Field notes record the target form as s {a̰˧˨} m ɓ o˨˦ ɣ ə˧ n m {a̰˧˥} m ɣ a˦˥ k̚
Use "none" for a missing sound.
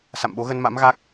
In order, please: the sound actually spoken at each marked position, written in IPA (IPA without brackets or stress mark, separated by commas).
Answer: a̰˧˨, a̰˧˥